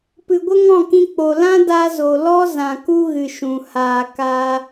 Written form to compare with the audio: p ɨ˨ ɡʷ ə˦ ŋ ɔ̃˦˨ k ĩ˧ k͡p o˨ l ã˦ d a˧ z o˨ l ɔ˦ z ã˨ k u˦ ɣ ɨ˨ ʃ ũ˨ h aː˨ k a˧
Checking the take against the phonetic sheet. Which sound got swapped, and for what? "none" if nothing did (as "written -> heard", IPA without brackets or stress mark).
none